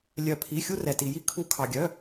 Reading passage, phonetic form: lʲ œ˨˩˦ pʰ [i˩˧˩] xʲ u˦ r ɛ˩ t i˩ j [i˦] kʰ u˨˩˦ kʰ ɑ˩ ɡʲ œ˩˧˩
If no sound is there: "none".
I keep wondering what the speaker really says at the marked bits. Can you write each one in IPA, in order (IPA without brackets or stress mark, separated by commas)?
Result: i˩˧˩, i˦